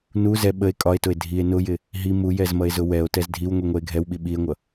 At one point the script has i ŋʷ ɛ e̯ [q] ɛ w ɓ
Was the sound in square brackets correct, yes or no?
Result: no